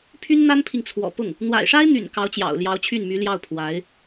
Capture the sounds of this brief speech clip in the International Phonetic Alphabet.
pʰ y˥ n n̪ a˥ n pʰ i˨ ŋ t͡sʰ w ɔ̰˨˩ p ʊ˥˩ ŋ | n̪ w a̰˨˩ ɪ̯ ʂ a˥ ɪ̯ n̪ y̰˨˩ n k ɑ˧˥ ʊ̯ t͡ɕ j ɑ̰˨˩ ʊ̯ l j ɑ˧˥ ʊ̯ t͡ɕʰ y˥˩ n m y˧˥ l j ɑ˥˩ ʊ̯ pʰ w a˧˥ ɪ̯

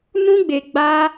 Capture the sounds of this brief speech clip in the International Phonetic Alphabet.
n ũ˦ ɡ͡b e˧ ɡ͡b a˦

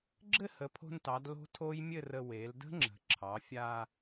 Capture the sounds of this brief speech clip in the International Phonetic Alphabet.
ɡ͡ǁ ɘ˥˧ h ə˩˧ pʰ o̤˧ n t ɑ˩˧ d l o̤˦˥ tʰ o˦˥ j mʲ ɘ˥˧ r ə˧ w e˩˧ l d ə̤˦˥ ŋ͡ǁ ə̤˩˧ ǁʰ ɑ˩˧ fʲ a˧

